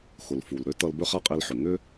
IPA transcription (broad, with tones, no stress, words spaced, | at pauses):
xʊ˩lfu˩l ɾø˥tʌ˧l bø˥χa˥qʼi˧lħʏ˩ ŋʏ˥